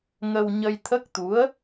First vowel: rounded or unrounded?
unrounded